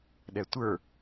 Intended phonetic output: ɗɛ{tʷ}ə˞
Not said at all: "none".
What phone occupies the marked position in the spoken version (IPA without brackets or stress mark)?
tʷ